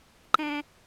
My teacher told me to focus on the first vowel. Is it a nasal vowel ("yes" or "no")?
yes